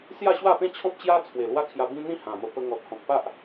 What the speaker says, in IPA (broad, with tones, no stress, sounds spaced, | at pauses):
s j a˥˧ ɕ w a˥˧ p ẽ˥˧ t͡ɕʰ ɔ̃˦ p̚ t͡ɕ j a˦ t͡sʰ w e˨˩ l w a˦ kʰ j a˧ b ĩ˦ n̪ ĩ˥˧ h ã˨˩ m ə˧ p ə˧ ŋ ɔ˨ t̚ h ɔ̃˨ k̚ p a˦ ʔ